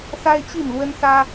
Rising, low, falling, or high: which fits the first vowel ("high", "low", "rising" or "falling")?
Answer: high